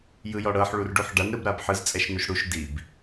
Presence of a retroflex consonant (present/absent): present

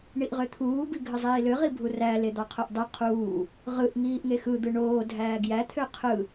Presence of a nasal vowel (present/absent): absent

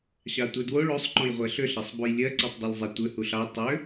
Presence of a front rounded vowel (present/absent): present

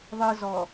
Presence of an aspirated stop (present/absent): absent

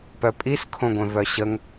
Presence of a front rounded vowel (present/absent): present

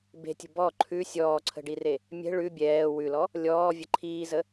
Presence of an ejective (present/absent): absent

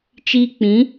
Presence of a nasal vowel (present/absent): present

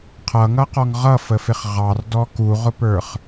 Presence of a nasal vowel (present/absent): absent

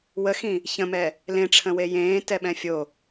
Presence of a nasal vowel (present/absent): present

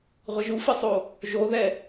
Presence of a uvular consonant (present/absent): present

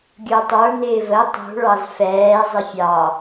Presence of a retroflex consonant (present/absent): present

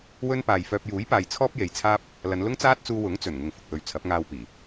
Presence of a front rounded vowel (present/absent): present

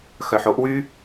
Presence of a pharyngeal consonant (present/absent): present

